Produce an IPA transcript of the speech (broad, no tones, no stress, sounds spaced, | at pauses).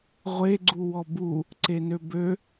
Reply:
ʁʷ e ɡ͡ǀ u w ɔ b u | ǀ e n ø b ø